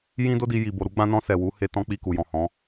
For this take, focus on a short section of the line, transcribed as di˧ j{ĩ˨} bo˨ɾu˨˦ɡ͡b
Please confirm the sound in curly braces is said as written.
no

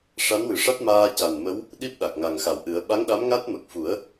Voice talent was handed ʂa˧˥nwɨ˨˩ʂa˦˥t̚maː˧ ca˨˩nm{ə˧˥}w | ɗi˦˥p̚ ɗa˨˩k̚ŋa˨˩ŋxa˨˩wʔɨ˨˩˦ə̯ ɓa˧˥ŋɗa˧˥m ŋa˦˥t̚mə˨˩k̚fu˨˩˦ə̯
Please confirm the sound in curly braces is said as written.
yes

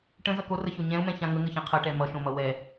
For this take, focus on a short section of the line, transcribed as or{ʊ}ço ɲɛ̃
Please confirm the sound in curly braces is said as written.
no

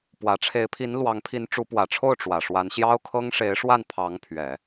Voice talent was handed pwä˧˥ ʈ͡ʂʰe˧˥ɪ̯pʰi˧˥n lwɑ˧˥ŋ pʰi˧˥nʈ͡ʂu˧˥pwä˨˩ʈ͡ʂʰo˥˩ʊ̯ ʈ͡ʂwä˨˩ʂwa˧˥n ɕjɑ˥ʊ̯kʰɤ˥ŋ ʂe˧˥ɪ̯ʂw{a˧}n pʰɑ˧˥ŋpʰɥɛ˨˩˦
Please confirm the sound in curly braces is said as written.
no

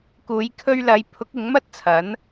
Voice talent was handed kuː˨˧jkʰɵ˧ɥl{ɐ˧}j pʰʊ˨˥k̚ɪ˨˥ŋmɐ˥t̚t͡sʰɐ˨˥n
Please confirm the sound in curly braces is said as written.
no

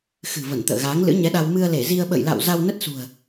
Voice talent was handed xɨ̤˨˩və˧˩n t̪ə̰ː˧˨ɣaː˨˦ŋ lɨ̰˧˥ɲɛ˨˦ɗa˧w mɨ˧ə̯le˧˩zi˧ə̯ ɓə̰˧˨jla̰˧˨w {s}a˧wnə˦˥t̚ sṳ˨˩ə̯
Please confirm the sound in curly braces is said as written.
no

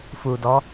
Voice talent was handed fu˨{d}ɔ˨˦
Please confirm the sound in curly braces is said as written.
yes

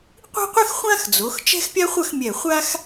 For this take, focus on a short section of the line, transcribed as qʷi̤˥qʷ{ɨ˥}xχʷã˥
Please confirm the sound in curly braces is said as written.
yes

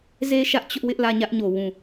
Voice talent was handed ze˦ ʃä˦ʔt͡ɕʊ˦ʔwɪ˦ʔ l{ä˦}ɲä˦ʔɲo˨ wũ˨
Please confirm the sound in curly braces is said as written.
no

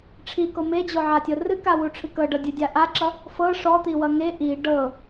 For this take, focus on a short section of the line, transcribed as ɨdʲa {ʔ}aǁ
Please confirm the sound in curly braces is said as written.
yes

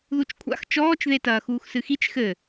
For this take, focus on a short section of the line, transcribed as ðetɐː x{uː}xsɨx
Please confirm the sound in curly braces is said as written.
yes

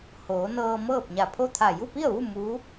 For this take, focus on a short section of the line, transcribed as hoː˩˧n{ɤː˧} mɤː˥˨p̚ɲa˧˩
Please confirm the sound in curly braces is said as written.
yes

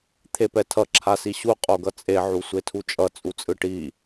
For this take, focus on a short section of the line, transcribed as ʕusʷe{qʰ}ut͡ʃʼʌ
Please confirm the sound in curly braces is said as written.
no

